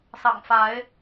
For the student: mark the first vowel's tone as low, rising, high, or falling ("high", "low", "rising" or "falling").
low